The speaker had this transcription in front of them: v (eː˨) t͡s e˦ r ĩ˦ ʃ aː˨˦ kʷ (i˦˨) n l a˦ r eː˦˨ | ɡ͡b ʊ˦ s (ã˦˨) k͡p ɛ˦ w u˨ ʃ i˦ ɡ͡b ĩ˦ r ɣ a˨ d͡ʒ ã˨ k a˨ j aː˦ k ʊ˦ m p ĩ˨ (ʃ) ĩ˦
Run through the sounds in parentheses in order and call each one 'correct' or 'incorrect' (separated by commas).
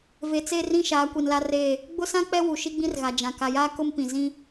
incorrect, incorrect, incorrect, incorrect